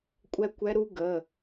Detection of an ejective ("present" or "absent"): present